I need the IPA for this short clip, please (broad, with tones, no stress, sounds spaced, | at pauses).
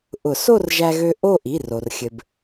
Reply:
ʔ ʊ˨˩˦ s o˥˧ r ʒ æ˧ ɣ ø˧ ʔ o˥˧ ʔ i˩˧˩ r o˩ r xʲ ɘ˩ b